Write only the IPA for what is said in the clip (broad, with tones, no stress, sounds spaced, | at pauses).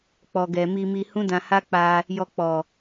k͡p ɔ˨ ɡ ɛ˨ m i˧ m i˧ h ũ˦ d ã˧ h a˦ k͡p a˧ | j ɔ˧ k͡p ɔ˨